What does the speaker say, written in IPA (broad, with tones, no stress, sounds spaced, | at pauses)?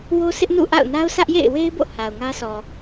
w o˦ sʰ ɪ˦ ʔ n ṵ˦˨ ʔ a̰˦˨ ʊ̯ n a˦ ʊ̯ sʰ ä˦ ʔ j ḛ˦˨ ɪ̯ w e˦ ɪ̯ b o̰˦˨ h a˨ ʊ̯ ŋ ä˦ sʰ ɔ˨